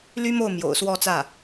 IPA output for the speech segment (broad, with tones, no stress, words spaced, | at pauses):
ly˥mo˥˩ʊ̯ mjo̰˨˩ʊ̯swɔ˥˧t͡sä˥˩